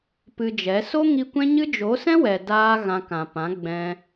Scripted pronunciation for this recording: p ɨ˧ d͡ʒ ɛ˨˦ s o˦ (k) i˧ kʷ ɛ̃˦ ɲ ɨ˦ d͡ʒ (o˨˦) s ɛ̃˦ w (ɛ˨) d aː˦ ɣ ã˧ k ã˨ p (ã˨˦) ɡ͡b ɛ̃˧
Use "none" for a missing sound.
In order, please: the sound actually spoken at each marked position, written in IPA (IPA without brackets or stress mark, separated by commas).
ŋ, o˨˦, ɛ˨, ã˨˦